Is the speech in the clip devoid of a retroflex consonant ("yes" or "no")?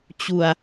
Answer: yes